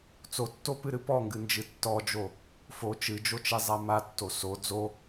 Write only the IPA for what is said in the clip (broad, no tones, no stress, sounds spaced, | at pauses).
t͡s o tː o p ɨ ɾ ɨ p ɔ ŋ ɡ ɨ n d͡ʒ ɨ tː ɔ d͡ʒ o | f o t͡ʃ ɨ d͡ʒ o t͡ʃ e zˤ a m a tː o s o d͡z o